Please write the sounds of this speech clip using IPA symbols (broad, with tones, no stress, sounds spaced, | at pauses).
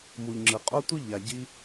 m u˨ ʎ ŋ͡ǁ ɯ˨ qʼ o˦ tʷ ɯ˦ ʎ a˨ ɟ i˧